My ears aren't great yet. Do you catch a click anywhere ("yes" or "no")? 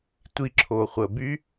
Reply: yes